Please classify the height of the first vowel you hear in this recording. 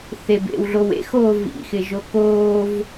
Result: mid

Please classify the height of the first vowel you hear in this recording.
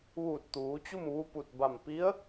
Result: high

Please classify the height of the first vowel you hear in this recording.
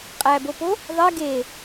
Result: low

